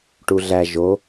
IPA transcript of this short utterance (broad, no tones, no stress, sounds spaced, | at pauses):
ʈ u ɮ æ ʒ o